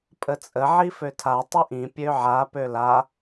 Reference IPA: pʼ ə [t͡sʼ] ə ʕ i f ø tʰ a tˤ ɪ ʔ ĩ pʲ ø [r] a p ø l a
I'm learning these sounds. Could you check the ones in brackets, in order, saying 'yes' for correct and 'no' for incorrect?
yes, no

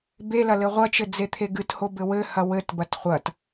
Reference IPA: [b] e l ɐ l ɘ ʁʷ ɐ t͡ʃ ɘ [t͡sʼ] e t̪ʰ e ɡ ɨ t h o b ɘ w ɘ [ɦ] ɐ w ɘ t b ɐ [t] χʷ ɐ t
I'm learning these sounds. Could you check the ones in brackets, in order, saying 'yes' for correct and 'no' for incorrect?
yes, no, no, yes

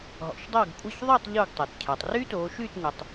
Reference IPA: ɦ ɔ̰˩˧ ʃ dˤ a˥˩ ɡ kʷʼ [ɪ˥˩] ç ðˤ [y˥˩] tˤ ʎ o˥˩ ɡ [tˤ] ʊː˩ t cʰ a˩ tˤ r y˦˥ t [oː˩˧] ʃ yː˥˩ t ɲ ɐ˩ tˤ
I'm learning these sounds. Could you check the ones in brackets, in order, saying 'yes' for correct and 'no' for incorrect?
yes, yes, yes, yes

